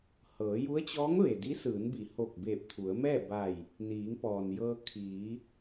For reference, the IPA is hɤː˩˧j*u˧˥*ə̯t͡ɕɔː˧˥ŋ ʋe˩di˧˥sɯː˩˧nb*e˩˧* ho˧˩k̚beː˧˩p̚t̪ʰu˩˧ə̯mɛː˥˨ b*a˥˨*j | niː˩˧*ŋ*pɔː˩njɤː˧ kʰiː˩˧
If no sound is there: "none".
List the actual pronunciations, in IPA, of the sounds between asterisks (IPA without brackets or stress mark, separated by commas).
u˧˥, i˩˧, a˧˩, ŋ